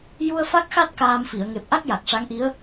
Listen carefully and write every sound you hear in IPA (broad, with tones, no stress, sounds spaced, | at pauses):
j u˧ ə̯ f a˦˥ k̚ x a˦˥ t̚ k aː˧ m f i˨˩˨ ə̯ ŋ e˨˩ p̚ ʔ a˦˥ k̚ j a˨˩ k̚ ʂ a˧˥ ŋ ʔ i˧˥ ə̯